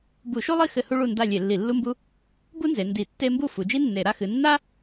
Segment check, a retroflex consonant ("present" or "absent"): present